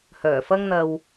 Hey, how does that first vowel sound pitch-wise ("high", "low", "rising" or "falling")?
low